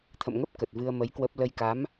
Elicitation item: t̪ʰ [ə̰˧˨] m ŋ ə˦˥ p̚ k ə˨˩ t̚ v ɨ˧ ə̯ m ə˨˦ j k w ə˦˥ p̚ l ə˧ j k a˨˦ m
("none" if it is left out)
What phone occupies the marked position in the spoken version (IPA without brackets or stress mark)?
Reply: ə̰˧˨